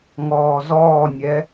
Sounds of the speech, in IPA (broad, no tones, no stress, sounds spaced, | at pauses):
ŋ ɔː z ɔː nʲ ɛ